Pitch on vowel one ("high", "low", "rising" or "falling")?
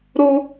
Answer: high